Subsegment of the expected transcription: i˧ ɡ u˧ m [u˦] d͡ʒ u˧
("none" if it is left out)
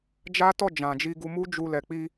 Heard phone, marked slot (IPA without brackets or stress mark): u˦